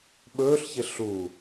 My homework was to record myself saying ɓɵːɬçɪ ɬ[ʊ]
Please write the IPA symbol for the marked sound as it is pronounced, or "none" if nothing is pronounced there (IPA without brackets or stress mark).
u